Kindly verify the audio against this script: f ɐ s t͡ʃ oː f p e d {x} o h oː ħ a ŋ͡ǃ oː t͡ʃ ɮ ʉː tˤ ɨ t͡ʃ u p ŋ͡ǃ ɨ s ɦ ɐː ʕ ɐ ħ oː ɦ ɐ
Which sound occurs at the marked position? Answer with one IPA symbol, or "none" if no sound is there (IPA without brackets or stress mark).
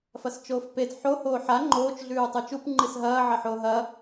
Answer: ħ